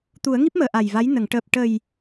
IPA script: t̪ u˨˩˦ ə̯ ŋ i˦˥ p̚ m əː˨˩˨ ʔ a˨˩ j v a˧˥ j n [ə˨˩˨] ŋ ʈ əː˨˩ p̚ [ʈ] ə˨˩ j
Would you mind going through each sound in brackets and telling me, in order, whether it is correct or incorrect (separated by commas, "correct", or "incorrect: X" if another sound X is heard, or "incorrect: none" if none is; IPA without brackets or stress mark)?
correct, correct